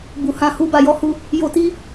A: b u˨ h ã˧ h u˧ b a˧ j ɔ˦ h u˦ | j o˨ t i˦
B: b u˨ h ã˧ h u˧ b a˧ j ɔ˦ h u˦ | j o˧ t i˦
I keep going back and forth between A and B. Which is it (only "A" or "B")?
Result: B